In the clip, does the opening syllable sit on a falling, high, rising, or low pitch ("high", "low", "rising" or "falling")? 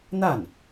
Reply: falling